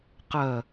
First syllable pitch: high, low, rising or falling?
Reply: low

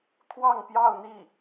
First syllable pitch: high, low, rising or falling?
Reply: falling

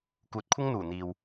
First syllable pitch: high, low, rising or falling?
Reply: rising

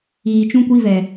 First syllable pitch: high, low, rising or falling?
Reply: low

